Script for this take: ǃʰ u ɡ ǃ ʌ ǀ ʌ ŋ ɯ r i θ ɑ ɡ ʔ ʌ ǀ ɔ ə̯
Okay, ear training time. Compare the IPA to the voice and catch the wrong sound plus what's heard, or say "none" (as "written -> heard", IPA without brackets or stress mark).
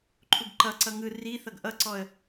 ɑ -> ʌ